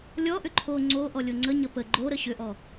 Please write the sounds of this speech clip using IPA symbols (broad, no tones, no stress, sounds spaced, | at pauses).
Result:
lʲ ɔ ʔ ʏ ǃʰ o ŋ͡ǀ o ʔ ɔ lʲ o ŋ͡ǀ ə ɲ ə p ə ɡ͡ǃ o ɾ ə ɕ ʏ ʔ ɔ